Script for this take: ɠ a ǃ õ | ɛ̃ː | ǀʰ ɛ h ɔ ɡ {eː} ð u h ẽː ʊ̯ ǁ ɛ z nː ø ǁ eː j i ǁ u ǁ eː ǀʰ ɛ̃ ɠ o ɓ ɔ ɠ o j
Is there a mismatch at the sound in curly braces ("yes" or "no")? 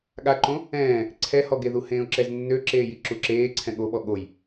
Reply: yes